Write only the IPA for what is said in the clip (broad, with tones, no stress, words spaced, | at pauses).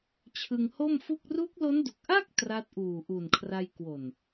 t͡ɕʰɯ˧ŋho˥˩mfu˥˩k̚ ru˦˥k̚lo˦˥ndu˨˩k̚ʔa˥˩k̚ tra˦˥t̚ʔuː˨˩ʔu˨˩nkʰra˧j kwo˨˩n